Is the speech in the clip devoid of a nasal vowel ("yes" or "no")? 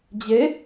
yes